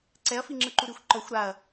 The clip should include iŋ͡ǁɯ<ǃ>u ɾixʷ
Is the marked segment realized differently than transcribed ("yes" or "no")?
no